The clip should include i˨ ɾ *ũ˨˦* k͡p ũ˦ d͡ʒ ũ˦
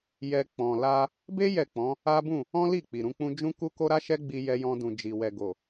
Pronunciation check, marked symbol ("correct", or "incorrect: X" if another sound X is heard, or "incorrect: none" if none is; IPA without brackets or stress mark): correct